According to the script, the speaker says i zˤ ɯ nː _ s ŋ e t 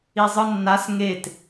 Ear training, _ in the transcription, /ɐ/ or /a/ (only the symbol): a